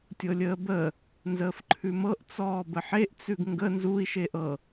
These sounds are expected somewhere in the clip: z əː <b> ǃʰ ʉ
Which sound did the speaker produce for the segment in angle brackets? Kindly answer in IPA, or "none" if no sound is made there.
f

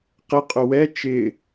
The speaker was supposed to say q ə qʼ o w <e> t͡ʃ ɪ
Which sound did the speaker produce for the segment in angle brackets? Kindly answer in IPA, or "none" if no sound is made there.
ɛ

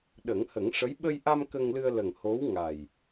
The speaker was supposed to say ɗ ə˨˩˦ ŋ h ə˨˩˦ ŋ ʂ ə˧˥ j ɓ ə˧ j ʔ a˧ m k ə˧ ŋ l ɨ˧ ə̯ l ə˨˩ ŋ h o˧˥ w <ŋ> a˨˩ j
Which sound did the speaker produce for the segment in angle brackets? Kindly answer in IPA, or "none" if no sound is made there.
ŋ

